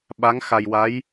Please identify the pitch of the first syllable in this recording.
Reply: rising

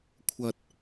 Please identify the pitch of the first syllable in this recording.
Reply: low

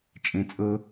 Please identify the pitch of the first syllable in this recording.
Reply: low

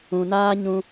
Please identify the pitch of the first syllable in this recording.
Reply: low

